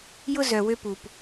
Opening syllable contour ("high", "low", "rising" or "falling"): high